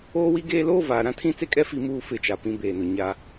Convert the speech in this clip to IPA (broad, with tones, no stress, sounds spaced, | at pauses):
oː˦ w i˦ ɡ eː˦ l oː˦ v aː˨ ɾ ã˦ tʰ ĩ˦ t͡s e˦ kʼ ɛ˦ f i˨ m uː˨ f ɪ˦˨ t͡ʃ a˨ p ĩ˦ b eː˨ n ʊ˨ ɲ a˦